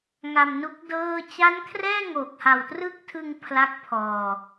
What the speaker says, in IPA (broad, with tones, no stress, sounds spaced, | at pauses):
ŋ a˧ m n u˦˥ k̚ d ɤː˥˩ t͡ɕ a˦˥ n kʰ r ɛː˥˩ ŋ o˨˩ k̚ h a˨˩ w t r ɯ˥˩ k̚ tʰ ɯ˧ ŋ pʰ l a˦˥ k̚ pʰ ɔː˧